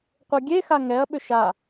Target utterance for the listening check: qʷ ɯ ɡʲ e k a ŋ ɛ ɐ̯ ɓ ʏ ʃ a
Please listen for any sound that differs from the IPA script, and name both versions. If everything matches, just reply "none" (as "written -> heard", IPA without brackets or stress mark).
k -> x